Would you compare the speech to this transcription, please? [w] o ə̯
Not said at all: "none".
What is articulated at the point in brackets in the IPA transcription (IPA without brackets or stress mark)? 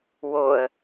w